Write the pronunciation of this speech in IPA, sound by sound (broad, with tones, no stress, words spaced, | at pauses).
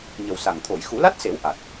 ɲə˨˩wsa˨˩ŋ t̪ʰo˨˩˨jxu˨˩˦la˦˥t̚se˨˩˦w ʔa˨˩t̚